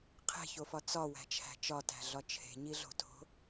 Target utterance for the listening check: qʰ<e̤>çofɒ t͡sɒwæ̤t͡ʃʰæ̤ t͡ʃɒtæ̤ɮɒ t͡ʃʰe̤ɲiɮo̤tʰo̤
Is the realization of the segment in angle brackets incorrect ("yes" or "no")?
no